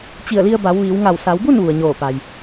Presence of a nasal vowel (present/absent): absent